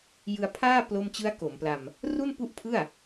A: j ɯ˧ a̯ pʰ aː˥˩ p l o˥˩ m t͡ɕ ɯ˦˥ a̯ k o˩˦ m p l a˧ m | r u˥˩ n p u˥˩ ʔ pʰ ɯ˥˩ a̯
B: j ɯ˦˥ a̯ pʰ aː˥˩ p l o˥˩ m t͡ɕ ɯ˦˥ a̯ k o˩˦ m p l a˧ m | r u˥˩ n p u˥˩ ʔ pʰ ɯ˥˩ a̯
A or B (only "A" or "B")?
A